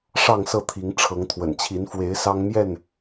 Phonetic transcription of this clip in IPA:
ʂɑ˥˨ŋsɤ˥˨t̪ʰi˨˦ŋ ʈ͡ʂʰɤ˨˦ŋt̪ʰwə̰˨˩nt͡ɕʰi˨˦nfwe˨˦ɪ̯ sɑ˦ŋmjɛ˥˨n

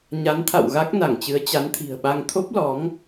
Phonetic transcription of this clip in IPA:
ɲa˨˦nt̪ʰa̰˧˨w ɣa˦˥k̚na˧˩ŋt͡ɕɨ˨˦ə̯ t͡ɕa˨˦nt̪ʰi̤˨˩ə̯ɓa˧ŋ t̪ʰo˦˥p̚lɔ˨˦ŋ

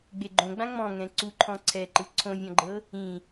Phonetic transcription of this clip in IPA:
ɡ͡beɡ͡ǃõɡ͡bã ŋ͡mɔ̃ŋɛ̃ ǀu ǃʰɔ̃ǀʰɛǃɯ ǀʰõvʲɔ̃ɡ͡ǃɤ | ĩ

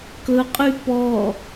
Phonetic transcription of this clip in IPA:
kɵqʼy pɔ

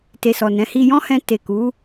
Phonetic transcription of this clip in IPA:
te˨sɔ˨nɛ̃˨˦hi˧ jɔ̃˦hɛ̃˧ te˨ku˨˦

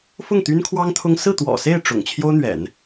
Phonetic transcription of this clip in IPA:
fʊ˥˩ŋt̪y˥nkʰwɑ˥ŋ t̪ʰʊ˥ŋ sɹ̩˥˩t̪wɔ̰˨˩se˥˩ɪ̯ ʈ͡ʂʊ̰˨˩ŋ t͡ɕʰjo˥ʊ̯n̪ɥɛ̰˨˩˦n

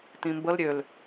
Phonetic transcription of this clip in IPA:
tĩmbəl ɾʲøl

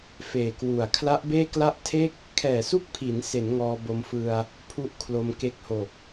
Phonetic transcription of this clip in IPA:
feː˨˩kwu˨˩a̯ kʰla˦˥ʔbeː˥˩kla˥˩ʔ tʰe˥˩k̚ | kʰɛː˨˩su˦˥k̚pʰi˩˦nse˩˦n ŋɔː˧bo˧mfɯ˧a̯ | pʰu˥˩ʔkʰlo˧m ke˦˥k̚ho˨˩k̚

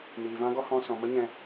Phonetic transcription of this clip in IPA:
niː˨vã˦ɡɔ˦ hɔ̃˧sɔ̃˨mə˦ ɲɛ̃˧

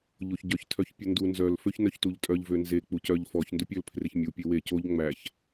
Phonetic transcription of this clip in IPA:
ʎoçɟœç tʰœçpʲɵndu nzœl føçnœçtuʎtʼœʎ vønze k͡pucœʎ fɔç ndɵpʲøl pʰreçmʲu pʲewe coʎ ŋ͡mæç

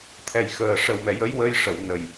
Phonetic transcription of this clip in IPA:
t̪ʰɛ˨˩jxəː˨˩ ʂə˨˩wmɛ˨˩jə˧˥j wə˧jʂə˨˩˨w nə˨˩j

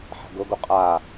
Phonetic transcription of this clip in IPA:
ħɛ̤ɡʊɡu qʼa

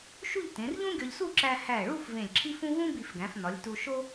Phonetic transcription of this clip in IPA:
ʃu˥˧ʎtẽ˩˧rʎũ˥ɡʲɒ˧ʎ su˥˧ǁæ˧ hæ˧˩ ɭu˥˧f vẽ˧˩lʲǁʰi˥fũ˥ vũ˥ bi˧˩fɡæ̃˩˧fnɒ˩˧lʲ tu˧ʃo˥

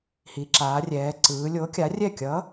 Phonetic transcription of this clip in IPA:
hi˩˧ǁaː˩˧rʲɛː˩˧ ǀɯː˩˧lʲo˨˥kʲa˨˥ rʲɛ˥˩ kʲʌ˨˥

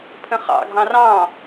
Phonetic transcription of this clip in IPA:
pʰə̃χɑ̰ɡʱɑ̃ rɑ̃

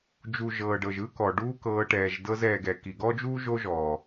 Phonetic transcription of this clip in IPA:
d͡ʒu˨ ʒɤː˨ɖɤ˨ʒɯ˦kɔ˨ ɖuː˦kɤː˧ʈɛː˨ʒdɤ˦z ɛː˧ɡɛ˨ ki˨ɡɔ˦d͡ʒuː˦ ʒo˦ʒɔː˨

